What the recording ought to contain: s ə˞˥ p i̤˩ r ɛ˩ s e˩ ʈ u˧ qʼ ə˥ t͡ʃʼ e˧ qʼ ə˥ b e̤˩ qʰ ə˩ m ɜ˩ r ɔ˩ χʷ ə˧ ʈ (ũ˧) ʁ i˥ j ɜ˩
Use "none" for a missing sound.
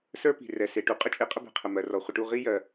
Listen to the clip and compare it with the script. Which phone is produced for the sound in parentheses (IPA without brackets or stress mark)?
u˧